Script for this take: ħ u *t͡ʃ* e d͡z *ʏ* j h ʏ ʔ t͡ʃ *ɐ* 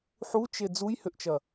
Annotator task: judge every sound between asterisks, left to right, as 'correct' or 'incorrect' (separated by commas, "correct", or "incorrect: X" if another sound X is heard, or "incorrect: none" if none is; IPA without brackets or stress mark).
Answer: correct, incorrect: u, correct